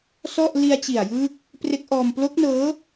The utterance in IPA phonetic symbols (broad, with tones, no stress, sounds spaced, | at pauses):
s ɔ˥˩ ʔ l i˧ a̯ t͡ɕ i˨˩ a̯ j ɯː˦˥ k̚ | p r e˦˥ k̚ ʔ ɔː˧ m p l o˦˥ k̚ n ɤː˦˥